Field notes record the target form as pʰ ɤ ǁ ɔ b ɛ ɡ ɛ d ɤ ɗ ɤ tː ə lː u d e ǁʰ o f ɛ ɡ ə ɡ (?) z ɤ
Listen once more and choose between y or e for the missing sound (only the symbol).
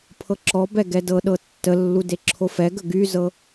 y